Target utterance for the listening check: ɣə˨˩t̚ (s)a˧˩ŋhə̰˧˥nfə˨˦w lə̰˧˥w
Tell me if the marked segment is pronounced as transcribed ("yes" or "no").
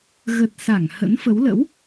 yes